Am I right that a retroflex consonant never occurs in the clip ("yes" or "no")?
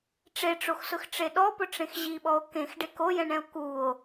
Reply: no